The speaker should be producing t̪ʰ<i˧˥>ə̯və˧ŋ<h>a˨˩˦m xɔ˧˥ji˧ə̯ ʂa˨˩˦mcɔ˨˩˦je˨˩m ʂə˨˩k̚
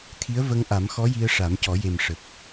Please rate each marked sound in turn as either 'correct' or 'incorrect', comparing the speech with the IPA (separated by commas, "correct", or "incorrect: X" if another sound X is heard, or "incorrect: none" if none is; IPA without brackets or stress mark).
correct, incorrect: ʔ